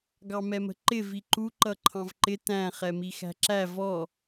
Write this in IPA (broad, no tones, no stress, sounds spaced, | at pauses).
ɡ ɑ m ɛ m ə̤ ǃ ɪ v i ǃ u ǃ ʌ ǃʰ ɑ̃ v ǃ ɪ t æ̃ χ ɛ m i x æ̤ ǁ æ v ɔ